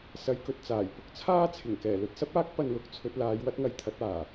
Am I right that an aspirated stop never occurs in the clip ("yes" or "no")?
no